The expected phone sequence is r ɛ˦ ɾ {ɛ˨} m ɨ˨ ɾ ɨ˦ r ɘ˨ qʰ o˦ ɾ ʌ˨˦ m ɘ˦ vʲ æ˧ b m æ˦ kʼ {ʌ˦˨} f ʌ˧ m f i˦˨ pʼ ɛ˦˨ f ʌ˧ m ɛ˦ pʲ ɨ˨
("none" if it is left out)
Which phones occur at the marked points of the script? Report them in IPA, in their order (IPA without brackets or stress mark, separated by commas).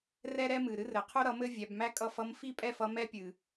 ɛ˦, ʌ˦˨